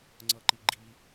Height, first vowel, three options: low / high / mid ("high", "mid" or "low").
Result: mid